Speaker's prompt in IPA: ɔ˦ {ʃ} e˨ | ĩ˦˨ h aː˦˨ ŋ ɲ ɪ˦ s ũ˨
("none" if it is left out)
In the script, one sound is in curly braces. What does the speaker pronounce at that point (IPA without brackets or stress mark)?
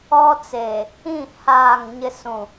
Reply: t͡s